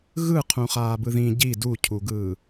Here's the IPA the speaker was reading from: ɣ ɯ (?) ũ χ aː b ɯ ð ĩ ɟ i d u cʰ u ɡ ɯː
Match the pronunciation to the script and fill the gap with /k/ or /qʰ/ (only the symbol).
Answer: qʰ